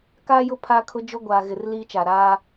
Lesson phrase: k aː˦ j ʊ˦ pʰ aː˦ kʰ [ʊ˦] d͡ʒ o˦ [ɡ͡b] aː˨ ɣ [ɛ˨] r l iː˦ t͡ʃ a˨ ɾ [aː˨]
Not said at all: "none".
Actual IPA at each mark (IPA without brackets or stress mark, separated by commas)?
ʊ˦, ɡʷ, ɪ˨, aː˦